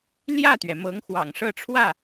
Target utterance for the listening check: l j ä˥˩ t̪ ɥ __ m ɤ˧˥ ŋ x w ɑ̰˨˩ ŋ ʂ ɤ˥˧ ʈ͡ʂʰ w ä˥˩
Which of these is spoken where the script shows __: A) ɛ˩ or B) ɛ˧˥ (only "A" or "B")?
A